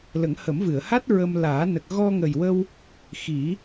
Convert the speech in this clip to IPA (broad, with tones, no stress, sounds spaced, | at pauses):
l ə˨˩˦ ŋ h ə˨˩˦ m v ɨ˨˩˨ ə̯ h a˦˥ t̚ ɹ ə˧ m l aː˨˩˦ n ə˨˩ k̚ ɣ ɔ˧ ŋ ə˨˩ j w ə˧ w | x i˨˩˦